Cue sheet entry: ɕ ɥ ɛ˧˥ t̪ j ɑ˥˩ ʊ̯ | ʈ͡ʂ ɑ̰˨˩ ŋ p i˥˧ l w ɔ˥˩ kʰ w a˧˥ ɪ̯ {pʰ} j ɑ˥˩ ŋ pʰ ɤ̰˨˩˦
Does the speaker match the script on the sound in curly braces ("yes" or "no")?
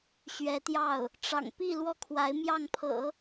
no